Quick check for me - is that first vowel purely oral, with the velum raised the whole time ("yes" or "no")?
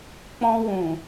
no